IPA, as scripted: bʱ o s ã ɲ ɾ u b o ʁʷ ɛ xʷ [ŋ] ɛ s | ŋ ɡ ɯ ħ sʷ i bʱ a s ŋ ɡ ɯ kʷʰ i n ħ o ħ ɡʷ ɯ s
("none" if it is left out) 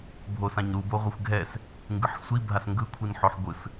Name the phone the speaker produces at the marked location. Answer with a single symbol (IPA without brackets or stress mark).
ɡʱ